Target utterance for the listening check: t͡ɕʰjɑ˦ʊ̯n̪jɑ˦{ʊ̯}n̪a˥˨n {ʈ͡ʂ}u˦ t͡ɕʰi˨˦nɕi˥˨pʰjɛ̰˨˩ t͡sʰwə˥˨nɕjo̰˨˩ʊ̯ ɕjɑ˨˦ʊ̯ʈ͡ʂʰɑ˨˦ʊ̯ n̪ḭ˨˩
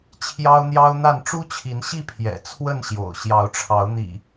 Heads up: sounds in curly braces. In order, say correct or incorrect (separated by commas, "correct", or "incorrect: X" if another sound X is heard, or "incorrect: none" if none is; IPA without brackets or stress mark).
correct, correct